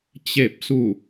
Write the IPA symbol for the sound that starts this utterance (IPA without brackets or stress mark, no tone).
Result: t͡ɕ